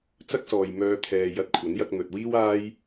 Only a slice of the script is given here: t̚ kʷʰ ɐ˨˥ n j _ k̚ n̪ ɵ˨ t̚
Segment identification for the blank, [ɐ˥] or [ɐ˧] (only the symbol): ɐ˧